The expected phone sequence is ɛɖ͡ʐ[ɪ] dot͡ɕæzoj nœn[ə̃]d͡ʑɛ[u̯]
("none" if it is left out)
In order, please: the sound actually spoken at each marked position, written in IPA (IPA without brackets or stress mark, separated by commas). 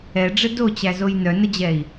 ɪ, ə, i̯